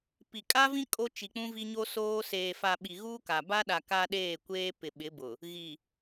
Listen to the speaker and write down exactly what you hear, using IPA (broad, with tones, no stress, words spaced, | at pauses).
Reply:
pi˨ kʼa˦vĩ˦ kʼo˦t͡ʃi˨k͡pũ˦ vi˦ɲo˦soː˦ seː˨fa˨ ɓi˨ɣuː˦ka˨ ba˦ɗa˨ ka˦ ɗeː˦˨kʷeː˦pɪ˨ɓɪ˨˦ bʊ˨ | ɣi˨